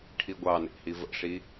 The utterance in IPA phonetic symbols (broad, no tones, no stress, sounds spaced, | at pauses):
ʈʰ i ɡʷ ɑ n ḛ h i v ə̰ ʂ i